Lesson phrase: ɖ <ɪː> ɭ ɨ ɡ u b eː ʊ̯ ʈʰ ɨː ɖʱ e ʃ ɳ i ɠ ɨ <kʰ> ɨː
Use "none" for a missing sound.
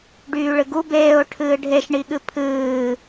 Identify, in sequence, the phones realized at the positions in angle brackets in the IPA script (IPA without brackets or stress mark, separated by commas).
yː, pʰ